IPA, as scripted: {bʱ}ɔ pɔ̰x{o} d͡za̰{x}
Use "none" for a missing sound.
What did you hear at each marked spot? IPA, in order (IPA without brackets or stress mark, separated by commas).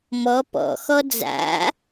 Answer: m, ɔ, none